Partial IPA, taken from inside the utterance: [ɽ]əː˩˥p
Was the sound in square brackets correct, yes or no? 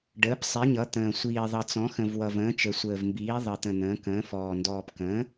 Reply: no